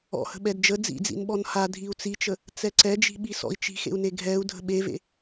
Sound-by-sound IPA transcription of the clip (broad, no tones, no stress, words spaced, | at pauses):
ɔ̰hə̤ ɓɛdd͡ʒə d͡zḭd͡zḭn ɓɔnha dʱiu̯t͡sit͡ʃə | t͡sɛǀɛd͡ʒi̤ɓi sɔ̰i̯t͡ʃi̤xḛu̯ne ɡʱɛu̯ dʱə̤ɓevḛ